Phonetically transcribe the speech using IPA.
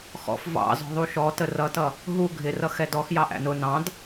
x ɔ̰ f v ɑ̰ z ɔ̤ ðˤ u ʃ ɔ t ə r ʌ t ʌ | ɦ u ɡʱ ɪ r ʌ x ɛ d ɔ x j ɑ ʔ æ̰ n ʊ n ɑ̃ d

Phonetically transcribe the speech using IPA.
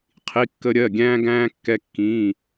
qʰ i˩˧˩ kː ə˧ ɾʲ ɜ˩˧˩ ɡʲ æ̃ː˧ ɡ æ̃ː˧ kː ɛ˧ kː ĩː˩˧˩

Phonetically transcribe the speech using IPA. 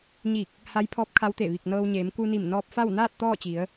ɲ i˧˩ k̚ | h a˧˥ j pʰ ɔː˧˥ p̚ kʰ a˧˥ w t̪ e˧˩ ʋ i˧˩ k̚ n ɤː˧ w ɲ eː˩˧ m k u˧ n i˧˩ m n ɔː˧ p̚ f a˥˨ w n aː˥˨ t̚ t̪ ɔː˥˨ t͡ɕ i˩˧ ə̯

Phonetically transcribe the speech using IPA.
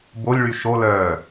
b o lʲ ɭ y ʃ o l œː

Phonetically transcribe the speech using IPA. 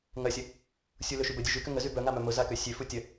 ŋ ɐ sʲ ə | sʲ u l ø ʃ y b ə dʲ œ ʒ y k ʏ ŋ ə z y b œ ŋ a m œ m ʊ z a k ø sʲ ø f u tʲ ə

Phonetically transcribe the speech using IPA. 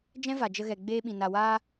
d͡ʒ ɛ̃˦ v a˨ d͡ʒ ə˧ ɣ ɛ˨ ɡ͡b eː˧ ɓ ĩ˨ n a˨ w aː˧

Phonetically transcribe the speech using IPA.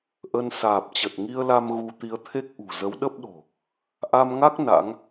ʔ ə˧ n s aː˨˩ p̚ t͡ɕ ə˨˩ t̚ ŋ i˧ ə̯ l a˧ m ɣ u˧ t̪ i˨˦ ə̯ t̪ʰ e˦˥ k̚ ʔ ṳ˨˩ z ə˨˦ w ɗ ə˦˥ p̚ ɗ o̤˨˩ | ʔ a˧ m ŋ a˦˥ k̚ n a̰˧˥ ŋ

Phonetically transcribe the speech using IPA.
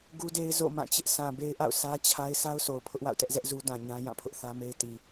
ɡ u˦ d e˦ ɪ̯ z o̰˦˨ m ã˦˨ t͡ɕ ɪ˦ ʔ sʰ ã˨ b e˦ ɪ̯ ʔ a̰˦˨ ʊ̯ sʰ ä˦ t͡ɕʰ a˦ ɪ̯ sʰ a˦ ʊ̯ sʰ o˨ ʊ̯ pʰ ʊ˦ ʔ w a̰˦˨ ʊ̯ t ɛ˦ ʔ z ɛ˦ ʔ z u˦ d ã˨ ɲ ã˦ j ã˦˨ pʰ ʊ˦ ʔ θ ä˦ m e˦ ɪ̯ t i˨

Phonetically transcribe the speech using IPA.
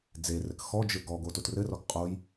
d͡z e r ɘ k x ɔ d͡ʒ ɘ ɡ ɔ ɡ o t o t r ɘ r ɔ ɡ qʼ o j

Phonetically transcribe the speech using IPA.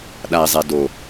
ɗ a i̯ zˤ e d o

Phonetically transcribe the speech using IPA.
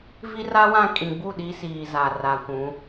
v i˦ r a˦ w ã˦˨ kʼ ĩ˨ ɡ͡b u˦˨ ɗ i˦ s iː˨ z a˨ r a˨ kʷ ũ˨˦

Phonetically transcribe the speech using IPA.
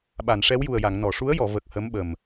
ɓ a˨˩˨ n ʂ ɛ˧˥ w j u˨˩ ə̯ j a˨˩˨ ŋ n ɔ˨˩˨ ʂ u˧˥ ə̯ j ɔ˨˩˨ v ə˨˩ k̚ h ə˧˥ m ɓ ə˨˩ m

